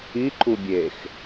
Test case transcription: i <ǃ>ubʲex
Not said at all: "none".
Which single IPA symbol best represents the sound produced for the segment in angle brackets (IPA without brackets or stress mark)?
ǃ